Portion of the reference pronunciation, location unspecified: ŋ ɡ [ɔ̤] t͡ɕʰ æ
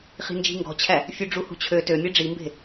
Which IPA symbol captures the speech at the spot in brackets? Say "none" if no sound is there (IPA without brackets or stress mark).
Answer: ɔ̤